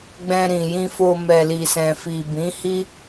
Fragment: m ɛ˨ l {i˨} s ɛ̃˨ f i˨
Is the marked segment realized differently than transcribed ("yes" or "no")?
no